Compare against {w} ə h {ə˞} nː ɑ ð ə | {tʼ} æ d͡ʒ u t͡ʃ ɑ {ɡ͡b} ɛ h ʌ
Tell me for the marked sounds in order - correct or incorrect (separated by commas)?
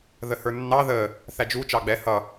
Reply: incorrect, correct, incorrect, correct